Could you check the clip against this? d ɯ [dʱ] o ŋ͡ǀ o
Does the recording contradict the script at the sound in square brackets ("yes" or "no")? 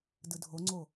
no